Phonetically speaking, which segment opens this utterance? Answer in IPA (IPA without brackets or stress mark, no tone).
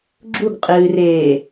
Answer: ɡ͡ǁ